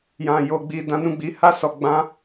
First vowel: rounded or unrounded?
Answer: unrounded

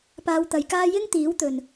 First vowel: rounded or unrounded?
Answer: unrounded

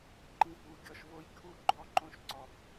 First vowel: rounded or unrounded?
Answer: unrounded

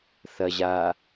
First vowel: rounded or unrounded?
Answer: unrounded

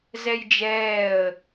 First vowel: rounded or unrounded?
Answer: unrounded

